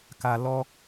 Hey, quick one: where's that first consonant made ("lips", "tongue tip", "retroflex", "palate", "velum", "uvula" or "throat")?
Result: velum